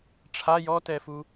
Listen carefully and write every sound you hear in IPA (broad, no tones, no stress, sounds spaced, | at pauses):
ʈ͡ʂʰ a j ɔ t ɛ f u